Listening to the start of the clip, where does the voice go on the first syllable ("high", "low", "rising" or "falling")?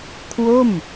falling